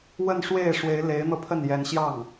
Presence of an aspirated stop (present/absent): present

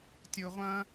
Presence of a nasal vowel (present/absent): present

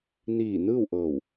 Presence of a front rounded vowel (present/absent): absent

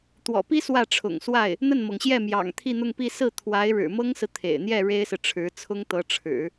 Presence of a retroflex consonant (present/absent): present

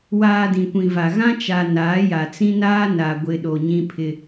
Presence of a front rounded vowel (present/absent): absent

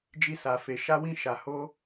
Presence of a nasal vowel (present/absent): present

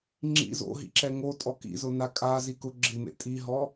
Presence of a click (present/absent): present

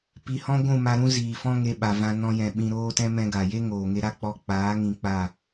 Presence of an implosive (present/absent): present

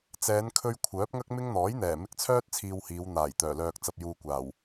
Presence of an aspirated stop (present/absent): present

